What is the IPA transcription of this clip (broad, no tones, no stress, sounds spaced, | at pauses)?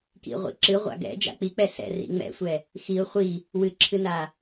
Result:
k ḭ ʁʷ ḭ ǁ ɨ ʁʷ a̰ ɡ ɛ̰ d͡ʒ a̰ k͡p i k͡p ɛ s ɛ̰ r ḭ ŋ͡m ɛ̰ sʷ ɛ | x i ʊ̯ χʷ i | w ɨ ǁʰ ɨ n a